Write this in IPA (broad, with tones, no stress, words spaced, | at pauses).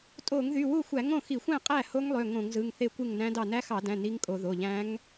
tʼo˧˩˧ŋðy˩˧˩wu˥˩xʷæ˧˩˧ ŋõ˥˩xi˧˩˧xʷæ̃˥˩ qʼæ˥˩ ho˦˥ŋlˠø˩˧˩ ŋõ˧˩˧ŋzɯ˩˧˩ŋ θe˥˩kʷɯ˥˩ŋnæ̃˦˥dɑ˥˩ næ˦˥xɑ˧˩˧dæ̃˩˧˩ ni˦˥ŋkʼo˧˩˧ ðo˩˧˩ʎæ̃˦˥ŋ